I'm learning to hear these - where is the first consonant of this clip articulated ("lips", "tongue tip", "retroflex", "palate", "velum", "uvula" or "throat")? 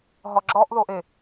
throat